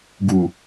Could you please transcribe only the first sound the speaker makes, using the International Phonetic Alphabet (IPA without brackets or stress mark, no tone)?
ɡ